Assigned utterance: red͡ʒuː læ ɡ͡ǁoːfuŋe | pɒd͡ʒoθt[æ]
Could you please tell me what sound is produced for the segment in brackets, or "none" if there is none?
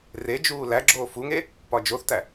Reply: æ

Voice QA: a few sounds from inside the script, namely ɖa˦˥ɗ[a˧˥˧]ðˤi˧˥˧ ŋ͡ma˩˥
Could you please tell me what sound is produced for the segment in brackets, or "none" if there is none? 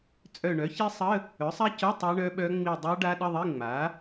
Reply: ə˧˥˧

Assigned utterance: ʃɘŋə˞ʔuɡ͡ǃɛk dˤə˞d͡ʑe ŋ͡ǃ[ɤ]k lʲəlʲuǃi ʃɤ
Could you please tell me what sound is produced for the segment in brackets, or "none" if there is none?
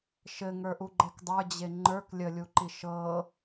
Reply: ə˞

